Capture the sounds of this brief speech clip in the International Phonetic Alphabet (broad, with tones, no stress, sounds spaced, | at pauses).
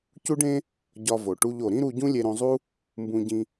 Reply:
c u˥ ɖ ẽ˥ | ɟ ɒ˧ v o˩ ʈ u˧ ʎ o˩ ɾ ĩ˥ ɾ u˧ ɟ ũ˥ lʲ e˧ ɾ õ˧ zˤ u˥ | m b ũ˧ ɟ ĩ˧